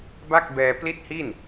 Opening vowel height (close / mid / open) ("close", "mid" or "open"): open